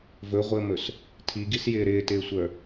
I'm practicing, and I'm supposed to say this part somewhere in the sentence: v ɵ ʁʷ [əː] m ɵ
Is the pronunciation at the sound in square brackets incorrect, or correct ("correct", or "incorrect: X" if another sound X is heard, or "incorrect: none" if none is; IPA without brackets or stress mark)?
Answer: correct